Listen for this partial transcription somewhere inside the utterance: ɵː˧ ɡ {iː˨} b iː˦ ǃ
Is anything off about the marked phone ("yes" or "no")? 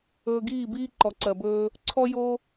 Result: yes